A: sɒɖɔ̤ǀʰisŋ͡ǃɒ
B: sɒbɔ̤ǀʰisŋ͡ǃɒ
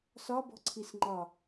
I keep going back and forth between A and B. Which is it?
B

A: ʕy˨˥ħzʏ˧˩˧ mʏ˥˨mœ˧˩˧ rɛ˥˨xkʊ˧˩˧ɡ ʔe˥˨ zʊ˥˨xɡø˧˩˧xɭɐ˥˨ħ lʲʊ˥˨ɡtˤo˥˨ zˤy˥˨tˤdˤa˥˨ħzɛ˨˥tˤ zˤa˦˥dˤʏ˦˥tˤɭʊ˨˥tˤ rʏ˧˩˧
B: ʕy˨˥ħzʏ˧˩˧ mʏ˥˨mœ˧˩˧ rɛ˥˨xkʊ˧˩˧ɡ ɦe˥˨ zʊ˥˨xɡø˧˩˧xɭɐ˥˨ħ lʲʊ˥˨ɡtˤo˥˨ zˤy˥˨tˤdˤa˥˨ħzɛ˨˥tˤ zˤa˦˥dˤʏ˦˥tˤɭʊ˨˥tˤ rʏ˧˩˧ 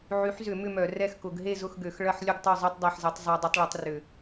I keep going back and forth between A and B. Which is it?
B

